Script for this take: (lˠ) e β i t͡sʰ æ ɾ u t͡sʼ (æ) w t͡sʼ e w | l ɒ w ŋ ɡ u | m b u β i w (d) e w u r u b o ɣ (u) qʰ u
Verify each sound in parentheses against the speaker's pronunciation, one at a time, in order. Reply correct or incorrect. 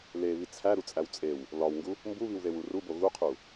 incorrect: l, correct, incorrect: ð, correct

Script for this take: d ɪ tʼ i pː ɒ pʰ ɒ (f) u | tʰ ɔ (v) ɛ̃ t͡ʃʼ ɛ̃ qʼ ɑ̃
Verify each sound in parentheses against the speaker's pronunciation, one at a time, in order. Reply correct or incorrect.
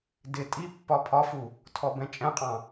correct, incorrect: b

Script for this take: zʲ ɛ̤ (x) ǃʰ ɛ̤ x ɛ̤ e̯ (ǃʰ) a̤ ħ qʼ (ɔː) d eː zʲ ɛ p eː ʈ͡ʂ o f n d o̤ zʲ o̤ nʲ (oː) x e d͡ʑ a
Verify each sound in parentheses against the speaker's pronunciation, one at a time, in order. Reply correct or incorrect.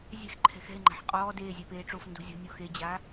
correct, incorrect: ŋ͡ǃ, correct, correct

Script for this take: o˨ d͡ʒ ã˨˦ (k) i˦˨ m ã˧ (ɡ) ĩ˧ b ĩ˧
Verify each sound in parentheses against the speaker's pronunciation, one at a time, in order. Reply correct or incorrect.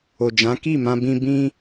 correct, incorrect: b

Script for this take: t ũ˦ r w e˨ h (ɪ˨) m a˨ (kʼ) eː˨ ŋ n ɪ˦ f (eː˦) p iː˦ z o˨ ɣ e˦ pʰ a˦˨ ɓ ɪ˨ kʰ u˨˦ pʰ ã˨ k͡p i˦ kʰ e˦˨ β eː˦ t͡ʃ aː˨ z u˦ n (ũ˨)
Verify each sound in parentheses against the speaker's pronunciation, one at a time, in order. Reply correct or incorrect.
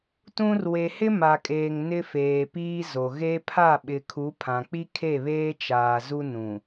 incorrect: ɪ˦, correct, incorrect: eː˨, correct

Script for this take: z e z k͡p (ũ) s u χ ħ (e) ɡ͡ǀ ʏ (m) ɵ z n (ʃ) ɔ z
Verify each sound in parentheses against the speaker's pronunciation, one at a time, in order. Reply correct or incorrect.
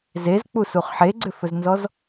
incorrect: u, correct, incorrect: f, incorrect: z

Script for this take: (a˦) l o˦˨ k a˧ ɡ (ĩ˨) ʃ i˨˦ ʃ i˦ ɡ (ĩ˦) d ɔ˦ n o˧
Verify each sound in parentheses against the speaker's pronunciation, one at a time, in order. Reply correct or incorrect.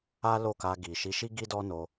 correct, incorrect: i˨, incorrect: i˦

